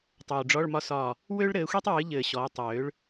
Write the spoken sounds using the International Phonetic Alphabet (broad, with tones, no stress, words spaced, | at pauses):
tˤoː˨ɖ͡ʐɔ˧˥˧ɭmɒ˥sɒː˦˨ | wø˥ɭɾɘː˨˦xʷi˥tˤ wɨ˨˦ʎɘː˨ ɕɔː˨˦tˤ wøː˨˦ɭ